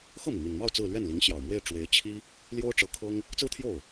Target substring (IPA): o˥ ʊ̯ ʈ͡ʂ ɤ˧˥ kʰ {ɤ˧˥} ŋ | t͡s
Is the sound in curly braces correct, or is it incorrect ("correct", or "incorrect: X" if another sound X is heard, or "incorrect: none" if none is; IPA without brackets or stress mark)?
incorrect: ɤ˥